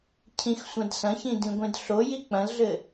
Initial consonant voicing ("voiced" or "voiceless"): voiceless